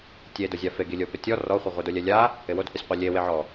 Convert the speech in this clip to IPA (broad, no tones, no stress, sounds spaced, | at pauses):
tʲ e d ʊ zʲ a f e ɡ i lʲ o p ɪ tʲ ɔ r ɔ χʷ ɪ ʁʷ i d o lʲ ɛ lʲ a | ɪ w o d h u sʲ qʷ ɛ lʲ e w e ʕ ɔ